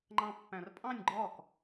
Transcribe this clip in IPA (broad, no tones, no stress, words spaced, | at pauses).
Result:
ŋ͡ǃɑ̃pːæ̃rpʼɑ̃nʲ ɡ͡ǃɒk